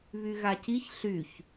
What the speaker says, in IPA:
β y ɣ a c i ç ɬ y ç

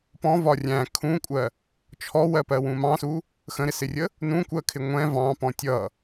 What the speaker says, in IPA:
p ɔ̃ v ɒ rʲ æ̃ kʰ ũ kʷʼ ɜ | t͡ʃʰ ɔ w ɜ p ɜ w ũ m ɑ̃ s u | x ə̃ ɾ ɪ s ɪ rʲ ə | n ũ kʷ ɜ kʰ ɪ ŋʷ ɛ̃ v ɑ̃ p ɔ̃ tʲ ʌ

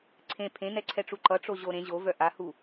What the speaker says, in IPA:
ǀʰ ẽ pʰ ẽ n ɛ ǀʰ ɛ ʈ͡ʂ u ǃ ʌ ʈ͡ʂ o ʑ o ɾ ẽ ʑ o v œ ʔ a h u

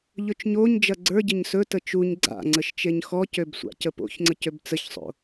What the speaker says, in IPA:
ʎ ɵ t͡ʃ ɲ o ɲ d͡ʒ ɐ ɡ͡ǀ ə˞ ɟ ə ɲ s ɵ t ə t͡ʃ u ɲ ɡ͡ǀ a̰ ŋ͡ǀ ə ʃ t͡ʃ e ɲ x ɔ c ø b sʷ a̰ c ə p o̰ ç ŋ͡ǀ ə c ø b t͡s ə ç sˤ o̰

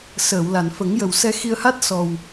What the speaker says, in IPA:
s əː˨˩˨ w l a˨˩˨ n f ə˨˩˦ ŋ j ə˨˩ w s ɛ˧ x i˧ ə̯ h a˦˥ t̚ s ɔ˨˩ w

